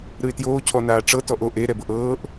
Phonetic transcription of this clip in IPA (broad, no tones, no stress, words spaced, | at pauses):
ɾɯɪ̯tjoː cʰɔnaːʈ͡ʂɤ tɔʔoʔ e ɾɛbɤʔɤːʔ